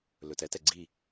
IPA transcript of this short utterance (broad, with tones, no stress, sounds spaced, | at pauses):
l ɵ˨ t ɛ˦ t ɛ˨ ɡ͡ǀ i˦˨